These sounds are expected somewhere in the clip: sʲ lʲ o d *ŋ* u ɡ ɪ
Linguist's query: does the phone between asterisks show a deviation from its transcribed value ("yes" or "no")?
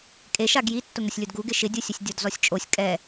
yes